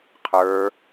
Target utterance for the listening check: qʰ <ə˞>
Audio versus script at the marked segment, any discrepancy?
no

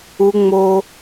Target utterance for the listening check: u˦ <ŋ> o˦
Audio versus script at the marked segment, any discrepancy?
yes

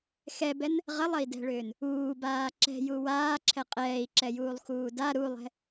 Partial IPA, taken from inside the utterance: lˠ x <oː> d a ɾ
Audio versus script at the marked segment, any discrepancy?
yes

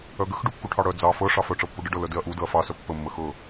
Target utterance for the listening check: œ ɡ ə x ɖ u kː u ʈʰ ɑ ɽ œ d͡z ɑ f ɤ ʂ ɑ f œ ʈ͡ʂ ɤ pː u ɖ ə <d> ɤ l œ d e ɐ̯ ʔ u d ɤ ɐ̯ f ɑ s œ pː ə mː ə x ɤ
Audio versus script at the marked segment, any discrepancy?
yes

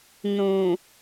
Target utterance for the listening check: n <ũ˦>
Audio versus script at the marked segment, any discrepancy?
yes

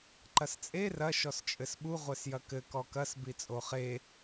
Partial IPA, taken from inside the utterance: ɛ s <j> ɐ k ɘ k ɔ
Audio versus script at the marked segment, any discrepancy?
no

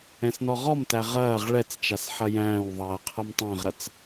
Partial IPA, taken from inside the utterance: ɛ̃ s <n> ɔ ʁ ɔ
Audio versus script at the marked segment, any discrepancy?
no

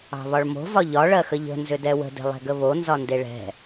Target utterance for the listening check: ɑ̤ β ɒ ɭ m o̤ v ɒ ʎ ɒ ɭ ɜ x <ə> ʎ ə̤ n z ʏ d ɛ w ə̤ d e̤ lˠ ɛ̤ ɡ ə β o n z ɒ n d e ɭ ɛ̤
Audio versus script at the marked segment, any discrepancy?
no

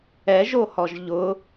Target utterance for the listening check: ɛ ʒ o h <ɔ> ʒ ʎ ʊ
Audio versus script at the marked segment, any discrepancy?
no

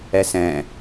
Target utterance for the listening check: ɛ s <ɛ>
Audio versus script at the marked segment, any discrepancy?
yes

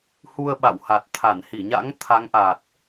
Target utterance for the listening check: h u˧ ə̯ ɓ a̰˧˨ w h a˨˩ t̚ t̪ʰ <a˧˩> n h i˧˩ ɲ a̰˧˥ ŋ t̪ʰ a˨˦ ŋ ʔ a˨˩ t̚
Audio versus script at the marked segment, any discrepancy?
no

